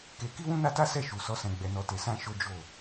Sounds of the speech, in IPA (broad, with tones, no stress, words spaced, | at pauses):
ke˧ ki˦wũ˦ na˦ta˦sɛ˦˨ ʃu˨ sɔ˨˦ sɛ̃˧ ɡ͡bɛ˧nɔ˧te˧sã˦ ʃo˦d͡ʒo˦˨